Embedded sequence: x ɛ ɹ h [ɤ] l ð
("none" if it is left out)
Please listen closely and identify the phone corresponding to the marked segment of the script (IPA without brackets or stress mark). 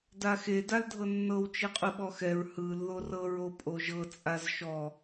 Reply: ɯ